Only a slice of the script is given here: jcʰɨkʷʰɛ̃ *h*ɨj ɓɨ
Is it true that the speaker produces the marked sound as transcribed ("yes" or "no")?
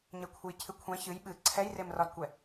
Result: no